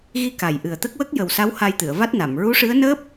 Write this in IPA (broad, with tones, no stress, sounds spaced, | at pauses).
ɣ i˧ k a˨˩ j ʔ ɨ˨˩ ə̯ t̪ ə˦˥ k̚ w ə˦˥ k̚ j ə˨˩ w s a˧˥ w h a˧ j t̪ ɨ˨˩˨ ə̯ v a˦˥ t̚ n a˨˩˨ m ɹ u˧˥ ʂ ɨ˧˥ ə̯ n əː˦˥ p̚